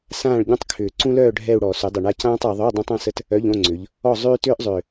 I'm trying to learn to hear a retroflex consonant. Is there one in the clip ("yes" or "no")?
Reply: yes